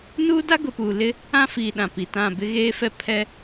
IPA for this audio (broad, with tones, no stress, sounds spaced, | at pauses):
n uː˦ d a˦ ɡ ʊ˨ p uː˨ l ɪ˦ | ã˦ f i˨ ɗ ã˨ p i˨ t ã˦˨ b ɪ˦ ɣ eː˦ f ɛ˦ pʰ ɛ˦